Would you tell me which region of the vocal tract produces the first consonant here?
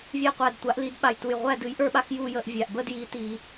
lips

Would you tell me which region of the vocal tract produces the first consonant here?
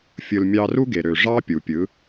lips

